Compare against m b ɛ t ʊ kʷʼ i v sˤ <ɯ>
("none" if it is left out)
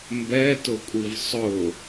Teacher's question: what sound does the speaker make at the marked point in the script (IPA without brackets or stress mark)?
ʊ